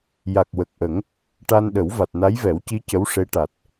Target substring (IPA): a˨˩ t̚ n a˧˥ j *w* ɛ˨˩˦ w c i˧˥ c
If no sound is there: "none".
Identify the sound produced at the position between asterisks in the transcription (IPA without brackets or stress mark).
v